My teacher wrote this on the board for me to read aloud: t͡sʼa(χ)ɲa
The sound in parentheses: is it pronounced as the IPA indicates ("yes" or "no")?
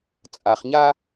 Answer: yes